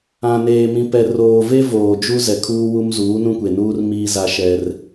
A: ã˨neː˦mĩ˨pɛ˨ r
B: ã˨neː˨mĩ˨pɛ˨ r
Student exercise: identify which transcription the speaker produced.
B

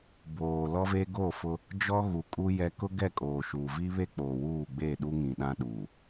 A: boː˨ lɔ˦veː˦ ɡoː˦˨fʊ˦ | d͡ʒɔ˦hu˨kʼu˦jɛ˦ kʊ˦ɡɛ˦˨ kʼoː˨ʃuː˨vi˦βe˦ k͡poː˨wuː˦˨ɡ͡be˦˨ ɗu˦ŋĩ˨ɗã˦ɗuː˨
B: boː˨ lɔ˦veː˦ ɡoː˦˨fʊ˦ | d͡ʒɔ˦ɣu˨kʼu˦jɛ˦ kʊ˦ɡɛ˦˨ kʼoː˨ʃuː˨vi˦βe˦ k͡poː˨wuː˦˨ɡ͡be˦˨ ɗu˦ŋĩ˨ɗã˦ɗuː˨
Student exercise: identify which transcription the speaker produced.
B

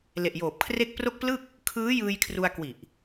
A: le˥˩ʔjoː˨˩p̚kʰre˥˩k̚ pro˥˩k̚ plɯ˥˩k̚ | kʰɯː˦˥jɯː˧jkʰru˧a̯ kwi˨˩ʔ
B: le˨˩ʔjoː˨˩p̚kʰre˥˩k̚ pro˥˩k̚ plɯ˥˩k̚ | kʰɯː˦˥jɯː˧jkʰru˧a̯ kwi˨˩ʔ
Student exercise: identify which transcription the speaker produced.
B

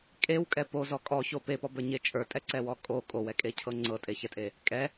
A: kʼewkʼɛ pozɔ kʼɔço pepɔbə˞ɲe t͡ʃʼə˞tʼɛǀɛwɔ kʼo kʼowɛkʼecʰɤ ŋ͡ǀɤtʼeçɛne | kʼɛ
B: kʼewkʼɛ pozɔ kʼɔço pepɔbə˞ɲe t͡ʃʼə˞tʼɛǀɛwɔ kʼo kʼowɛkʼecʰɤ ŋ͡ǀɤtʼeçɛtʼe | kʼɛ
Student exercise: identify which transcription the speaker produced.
B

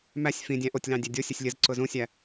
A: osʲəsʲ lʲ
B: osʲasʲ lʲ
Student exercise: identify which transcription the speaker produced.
A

